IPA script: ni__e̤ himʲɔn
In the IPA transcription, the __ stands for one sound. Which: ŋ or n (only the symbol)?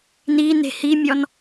n